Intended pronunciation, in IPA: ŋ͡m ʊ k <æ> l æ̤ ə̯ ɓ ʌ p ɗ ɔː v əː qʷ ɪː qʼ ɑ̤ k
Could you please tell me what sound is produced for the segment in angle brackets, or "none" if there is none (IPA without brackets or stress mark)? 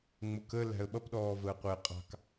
ə